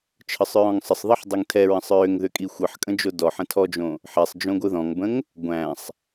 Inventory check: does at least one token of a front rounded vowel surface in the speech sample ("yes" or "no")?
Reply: yes